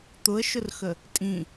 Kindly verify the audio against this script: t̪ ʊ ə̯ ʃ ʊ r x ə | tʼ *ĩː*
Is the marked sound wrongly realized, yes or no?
yes